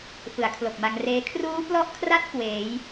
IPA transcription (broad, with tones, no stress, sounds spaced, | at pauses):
f ɯ˩˦ a̯ kʰ l o˨˩ k̚ m a˧ ŋ r eː˦˥ kʰ r uː˦˥ p l ɔ˦˥ ʔ kʰ r a˦˥ t̚ k w eː˩˦ j